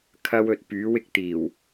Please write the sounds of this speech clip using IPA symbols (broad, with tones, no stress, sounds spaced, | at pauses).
kʰ ɐ˥ w ɵ˨ t̚ p yː˨˥ w ɪ˧ k̚ t̪ iː˨˩ w